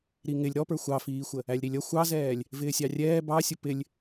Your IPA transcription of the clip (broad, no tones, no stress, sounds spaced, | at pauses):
ɾ i ŋ ɪ lʲ ɾ ɔ p ə˞ xʷ ɑ f iː xʷ ə | æ lʲ ɾ i lʲ ʌ xʷ ɑ z ɛː lʲ | v ɪː sʲ ɑ rʲ ɛː b ɑ sʲ ʊ p ɪ lʲ